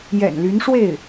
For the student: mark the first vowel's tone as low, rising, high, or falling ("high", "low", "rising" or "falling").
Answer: low